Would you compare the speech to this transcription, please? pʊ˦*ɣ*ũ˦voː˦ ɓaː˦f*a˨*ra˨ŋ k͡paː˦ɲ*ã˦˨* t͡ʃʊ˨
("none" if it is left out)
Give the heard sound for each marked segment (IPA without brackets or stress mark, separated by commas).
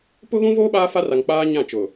ɣ, a˦, ã˦˨